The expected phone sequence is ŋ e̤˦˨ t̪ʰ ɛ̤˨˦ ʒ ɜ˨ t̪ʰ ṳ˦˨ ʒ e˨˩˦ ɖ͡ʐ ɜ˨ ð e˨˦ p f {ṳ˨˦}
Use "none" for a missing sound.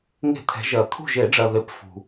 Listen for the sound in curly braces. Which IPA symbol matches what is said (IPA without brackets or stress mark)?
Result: ṳ˨